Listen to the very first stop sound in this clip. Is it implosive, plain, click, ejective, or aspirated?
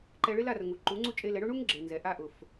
click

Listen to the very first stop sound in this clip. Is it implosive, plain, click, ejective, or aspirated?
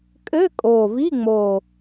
ejective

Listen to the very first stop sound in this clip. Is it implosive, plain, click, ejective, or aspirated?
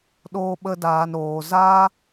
implosive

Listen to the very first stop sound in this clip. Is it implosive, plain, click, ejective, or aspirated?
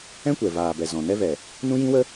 plain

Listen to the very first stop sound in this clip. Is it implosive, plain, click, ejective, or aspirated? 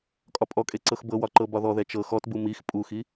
ejective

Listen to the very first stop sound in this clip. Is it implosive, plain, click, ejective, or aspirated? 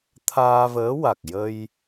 aspirated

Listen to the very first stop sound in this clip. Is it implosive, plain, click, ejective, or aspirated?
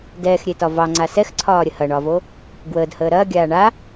plain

